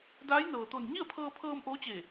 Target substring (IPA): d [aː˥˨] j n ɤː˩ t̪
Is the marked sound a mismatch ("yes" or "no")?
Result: yes